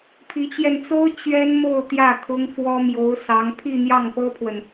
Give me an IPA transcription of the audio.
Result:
pʰ i˧˥ t͡ɕ j ɛ˧ n t͡s o˥ ʊ̯ t͡ɕ ɥ ɛ˥ n m o˥˧ ʊ̯ t̪ j ä˥˩ kʰ ʊ˥ ŋ f w ɔ˥ m j o˧˥ ʊ̯ s ɑ˧˥ ŋ pʰ i˥˧ n̪ j ɑ˥˩ ŋ p ɤ˥ pʰ w ə˨ n

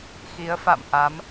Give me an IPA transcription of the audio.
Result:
x i˨˦ ə̯ f a̰˧˨ m ʔ a˨˦ m

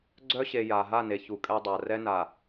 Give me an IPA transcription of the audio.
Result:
ɡ͡ǀ œ˦ ɕ e˨ j a˨ ɦ a˦˨ n e˨ ç u˨ kʼ ɛ˦ dˤ a˨ r ɛ˦ n a˨

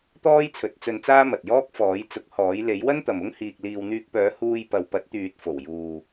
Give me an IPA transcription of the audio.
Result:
t̪ ɔː˥ j t͡sʰ ɵ˨˥ t̚ t͡s ɵ˧ n t͡s aː˥ m ɐ˨ t̚ j ɔː˥ k̚ f ɔː˨˥ j t͡s ʊ˨˥ k̚ h ɔː˨˥ j l e˨˥ j w ɐ˥ n t̪ ɐ˨ m ʊ˥ ŋ h iː˧ k̚ l iː˧ w n̪ yː˧ k̚ p œː˨˥ h uː˧ j p ɐ˨ w p ɐ˨˥ t̚ t̪ yː˨ t̚ f o˨˩ w j uː˨

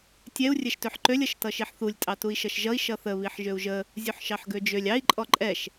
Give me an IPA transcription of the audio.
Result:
tʲ ɛ u̯ rʲ ɛ ʃ t ø ħ ǃ ø lʲ ʌ ʃ t ʌ ʃ i ħ θ u lʲ tʼ ɑ t u i̯ ʃ ʌ ʃ ʒ ʌ i̯ ʃ ʌ θ ə β i ħ ʒ ø u̯ ʒ ə | zʲ u ħ ʃ ɑ ħ ɡ ø d͡ʒ ø lʲ ɑ i̯ ǃʼ ɔ ǃʼ ɛ ʃ

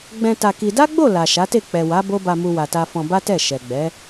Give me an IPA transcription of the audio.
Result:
ɡ͡b ɛ̃˧ t a˧ k i˧ d a˦ ɡ͡b o˦˨ l a˨ ʃ a˨˦ t e˦˨ k͡p ɛ˨ w a˨˦ b o˦ b a˧ m u˧ w a˨ t a˧ f ɔ̃˧ b a˦ t ɛ˦˨ ʃ ɛ˨ ɡ͡b ɛ˨˦

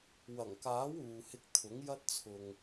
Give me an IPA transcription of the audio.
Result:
w ɐ˨˩ ŋ k aː˨˥ w uː˨ h ɪ˧ k̚ t̪ʰ ʊ˨˥ ŋ j ɐ˥ t̚ t͡sʰ ʊ˧ ŋ

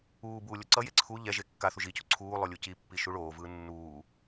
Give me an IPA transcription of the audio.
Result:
uː b uː lʲ o ǀ ʌ j e ǀʰ u ʎ ɛ ʒ e kː a θ u ʒ i c u ǀʰ uː lˠ o lʲ u c i pː i ʃ u ɭ oː v ɯː nː uː

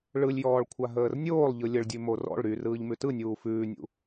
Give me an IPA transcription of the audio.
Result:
ɭ ɯ lʲ j ɔː ɭ kʷʰ a ɦ əː r nʲ oː lˠ ʎ ɯ lʲ ə ɭ dʲ ʉ m o r ɔ̰ ɭ ɾ y r ɯː ʎ m ʉ t ɯ nʲ uː f ʉː nʲ ṵ

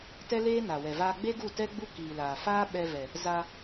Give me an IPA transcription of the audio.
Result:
t ɛ˦ l eː˦ n a˨ w ɛ˨ v aː˧ ɡ͡b e˦ ɡ u˦˨ t ɛ˦ ɡ͡b u˦ k iː˨ l aː˨ f aː˦ ɓ ɛ˧ v ɛ˨ | z a˧

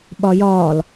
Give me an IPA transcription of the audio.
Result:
ɓ ɒ j ɒː l

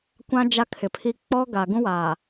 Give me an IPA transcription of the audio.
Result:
kʷ ã˦ d͡ʒ a˦ kʰ ɪ˨ pʰ i˦ k͡p ɔ˦ ɡ a˨ ɡ ũ˦ w aː˨

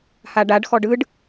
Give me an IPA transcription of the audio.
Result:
h a ɖ a ɖ x ɔ ɖ ɯ ɖ

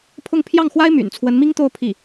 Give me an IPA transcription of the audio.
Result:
pʰ ʊ˥˧ ŋ pʰ j ɑ˥˩ ŋ x w a˥ ɪ̯ m y̰˨˩ n t͡sʰ w ə˧˥ n m i˥ ŋ t̪ o˥˧ ʊ̯ pʰ i˥˩

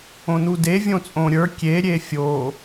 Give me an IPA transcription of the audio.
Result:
õ n u d e vʲ õ t͡sʼ õ ɾʲ ə˞ kʲ e ɾʲ e fʲ o

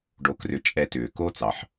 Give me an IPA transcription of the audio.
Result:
ɖ o˧ k r ʏ˧ t͡ʃʼ ɛ˧ t ʏː˩ k o˥ t͡s ɑ˩ ħ

